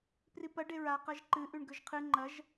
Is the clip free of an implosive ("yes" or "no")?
yes